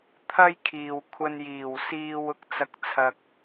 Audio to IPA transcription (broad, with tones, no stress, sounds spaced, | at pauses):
t̪ʰ ɐ˥ j kʰ iː˨ w kʷʰ ɐ˧ n j iː˨˩ w s iː˧ w ʊ˥ k̚ t͡s ɐ˨ k̚ t͡sʰ ɐ˨ k̚